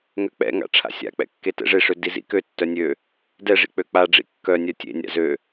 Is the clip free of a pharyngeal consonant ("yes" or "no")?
yes